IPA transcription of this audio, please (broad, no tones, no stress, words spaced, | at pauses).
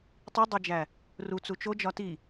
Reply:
tˤidˤed͡ʒæ | rut͡su t͡ʃod͡ʒɒ ti